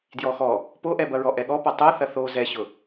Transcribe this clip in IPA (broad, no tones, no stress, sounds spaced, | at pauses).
d j ɔ x ɔ | p o ʔ ɛ b ɐ ɹ ɔ ʔ ɛ ɠ ɔ p ɐ tˤ o θ ɐ θ o z ɛ ɕ ʊ